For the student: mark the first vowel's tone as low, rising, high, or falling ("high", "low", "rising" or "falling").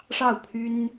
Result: falling